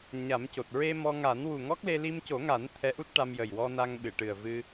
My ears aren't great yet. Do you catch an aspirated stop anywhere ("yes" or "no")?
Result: yes